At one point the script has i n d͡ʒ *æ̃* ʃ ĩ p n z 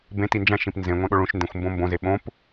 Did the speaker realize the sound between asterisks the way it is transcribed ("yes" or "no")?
yes